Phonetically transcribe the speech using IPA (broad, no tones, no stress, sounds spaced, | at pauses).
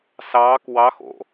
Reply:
s ɑː k w ɑ x o̰